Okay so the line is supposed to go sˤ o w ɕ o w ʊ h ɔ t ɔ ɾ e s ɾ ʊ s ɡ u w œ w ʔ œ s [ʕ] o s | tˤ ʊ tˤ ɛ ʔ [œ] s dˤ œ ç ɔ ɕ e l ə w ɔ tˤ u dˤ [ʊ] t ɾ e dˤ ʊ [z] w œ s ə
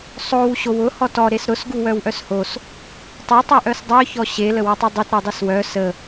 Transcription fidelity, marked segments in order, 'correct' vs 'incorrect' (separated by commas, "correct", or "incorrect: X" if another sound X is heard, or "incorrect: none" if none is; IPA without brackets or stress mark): incorrect: h, correct, correct, incorrect: s